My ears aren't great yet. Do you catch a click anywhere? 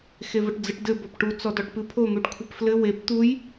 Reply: no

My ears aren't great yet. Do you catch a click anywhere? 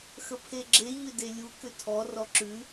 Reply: yes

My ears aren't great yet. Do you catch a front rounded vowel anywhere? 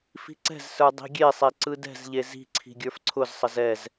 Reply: no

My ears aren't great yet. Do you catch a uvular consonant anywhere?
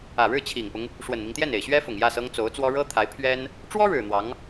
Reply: no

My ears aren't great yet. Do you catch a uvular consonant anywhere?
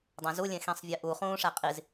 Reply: yes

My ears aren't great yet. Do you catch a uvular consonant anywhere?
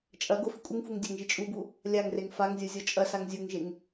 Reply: no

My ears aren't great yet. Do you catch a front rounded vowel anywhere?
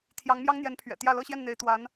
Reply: no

